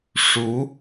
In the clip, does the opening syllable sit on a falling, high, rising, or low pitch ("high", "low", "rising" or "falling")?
rising